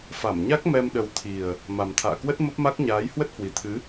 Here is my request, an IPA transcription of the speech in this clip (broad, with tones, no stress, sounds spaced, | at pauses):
f a˧˩ m ɲ a˦˥ k̚ m ɛ˧ m ɗ ə˨˦ w t̪ʰ i˨˩ ə̯ | m a˨˩ m t̪ʰ a̰ː˧˨ k w ə˦˥ t̚ m ə˦˥ p̚ m a˦˥ k̚ ɲ aː˨˦ j h w ə˦˥ t̚ h w i˨˩ t̪ʰ ɨ˨˦